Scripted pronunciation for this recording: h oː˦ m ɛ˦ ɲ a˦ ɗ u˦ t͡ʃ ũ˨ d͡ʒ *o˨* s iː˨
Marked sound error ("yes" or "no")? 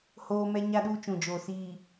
no